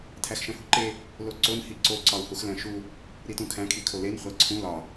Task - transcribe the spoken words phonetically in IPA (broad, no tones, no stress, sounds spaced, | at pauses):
tʰ æ x ʃ æ̃ h u ǃ e | l o ǀ o n h i ǀ o ǀ ɒ u̯ h u x l æ̃ ʃ u | ɾ i t ũ kʰ æ̃ kʰ i kʰ o l e n χʷ æ ǀʰ ũ l ɒ